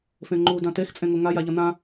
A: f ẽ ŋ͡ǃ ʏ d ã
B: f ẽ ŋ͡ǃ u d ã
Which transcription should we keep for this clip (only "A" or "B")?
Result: B